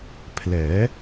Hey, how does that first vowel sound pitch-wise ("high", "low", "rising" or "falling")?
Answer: rising